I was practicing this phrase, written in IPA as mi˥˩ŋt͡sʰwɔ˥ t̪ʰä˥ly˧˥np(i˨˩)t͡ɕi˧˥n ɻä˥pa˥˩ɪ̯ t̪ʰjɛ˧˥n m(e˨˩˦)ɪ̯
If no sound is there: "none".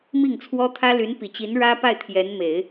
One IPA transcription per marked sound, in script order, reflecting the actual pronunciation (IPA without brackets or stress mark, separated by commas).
i˨˩, e˨˩˦